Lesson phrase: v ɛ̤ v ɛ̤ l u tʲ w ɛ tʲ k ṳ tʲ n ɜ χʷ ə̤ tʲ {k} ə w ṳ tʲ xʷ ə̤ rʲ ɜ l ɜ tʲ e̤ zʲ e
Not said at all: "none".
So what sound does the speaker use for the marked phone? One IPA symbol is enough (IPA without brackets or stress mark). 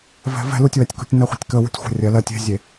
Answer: k